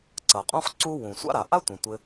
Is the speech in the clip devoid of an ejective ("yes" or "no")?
no